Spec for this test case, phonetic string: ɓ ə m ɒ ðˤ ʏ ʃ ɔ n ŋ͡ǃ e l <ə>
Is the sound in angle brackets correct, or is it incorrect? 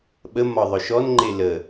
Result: correct